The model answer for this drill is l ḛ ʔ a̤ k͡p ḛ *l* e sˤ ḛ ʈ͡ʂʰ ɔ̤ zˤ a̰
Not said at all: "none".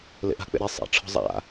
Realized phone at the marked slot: ɾ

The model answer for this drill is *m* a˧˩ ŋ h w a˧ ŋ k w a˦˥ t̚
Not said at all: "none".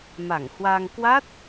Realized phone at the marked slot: m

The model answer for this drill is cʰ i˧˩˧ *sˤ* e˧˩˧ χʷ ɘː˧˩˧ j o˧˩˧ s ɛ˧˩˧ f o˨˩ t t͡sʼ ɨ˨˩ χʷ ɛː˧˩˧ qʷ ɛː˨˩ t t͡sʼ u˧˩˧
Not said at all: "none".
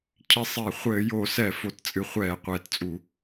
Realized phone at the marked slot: sˤ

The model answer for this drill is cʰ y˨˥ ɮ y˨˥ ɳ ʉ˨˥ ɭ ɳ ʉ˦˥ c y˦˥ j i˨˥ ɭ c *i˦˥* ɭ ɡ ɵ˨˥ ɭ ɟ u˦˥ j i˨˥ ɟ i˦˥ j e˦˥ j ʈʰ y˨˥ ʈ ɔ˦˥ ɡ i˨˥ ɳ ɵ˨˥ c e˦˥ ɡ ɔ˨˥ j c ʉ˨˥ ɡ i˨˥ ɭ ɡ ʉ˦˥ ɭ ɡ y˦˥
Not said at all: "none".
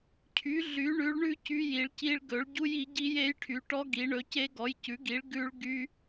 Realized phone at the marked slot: i˦˥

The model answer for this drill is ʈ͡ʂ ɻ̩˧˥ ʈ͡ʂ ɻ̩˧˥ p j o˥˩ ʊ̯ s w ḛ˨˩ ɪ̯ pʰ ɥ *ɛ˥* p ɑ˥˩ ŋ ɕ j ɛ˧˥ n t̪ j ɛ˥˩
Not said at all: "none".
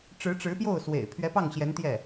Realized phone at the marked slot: ɛ˧˥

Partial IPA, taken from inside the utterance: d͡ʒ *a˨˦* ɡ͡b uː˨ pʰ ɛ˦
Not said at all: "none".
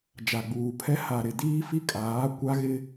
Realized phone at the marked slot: a˨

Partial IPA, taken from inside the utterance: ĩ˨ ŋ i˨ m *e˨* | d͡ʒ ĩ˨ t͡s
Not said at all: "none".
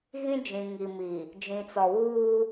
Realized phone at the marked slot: i˨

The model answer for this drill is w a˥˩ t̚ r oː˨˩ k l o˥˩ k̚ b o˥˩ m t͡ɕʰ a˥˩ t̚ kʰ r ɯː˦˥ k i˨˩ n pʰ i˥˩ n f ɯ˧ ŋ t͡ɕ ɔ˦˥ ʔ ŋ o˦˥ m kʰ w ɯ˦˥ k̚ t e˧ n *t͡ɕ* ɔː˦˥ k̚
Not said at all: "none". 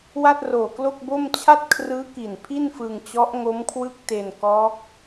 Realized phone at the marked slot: k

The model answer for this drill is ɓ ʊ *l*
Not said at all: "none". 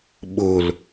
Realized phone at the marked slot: l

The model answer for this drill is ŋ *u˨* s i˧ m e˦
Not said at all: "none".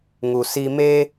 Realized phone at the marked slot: u˨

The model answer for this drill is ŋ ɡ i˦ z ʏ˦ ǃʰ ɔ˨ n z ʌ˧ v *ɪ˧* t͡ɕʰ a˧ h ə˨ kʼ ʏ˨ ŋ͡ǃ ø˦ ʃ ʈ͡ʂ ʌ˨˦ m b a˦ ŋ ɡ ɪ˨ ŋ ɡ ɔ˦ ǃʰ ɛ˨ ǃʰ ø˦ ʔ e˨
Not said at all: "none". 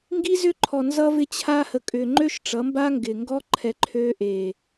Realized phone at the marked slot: ɪ˧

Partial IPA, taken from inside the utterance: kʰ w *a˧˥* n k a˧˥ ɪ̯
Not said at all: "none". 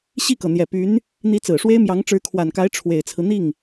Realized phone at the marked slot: a˨˩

